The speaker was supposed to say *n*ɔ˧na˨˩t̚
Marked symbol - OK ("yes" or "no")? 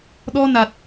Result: no